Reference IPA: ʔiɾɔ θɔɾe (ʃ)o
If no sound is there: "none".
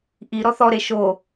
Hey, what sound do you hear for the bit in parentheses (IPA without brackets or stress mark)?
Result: ʃ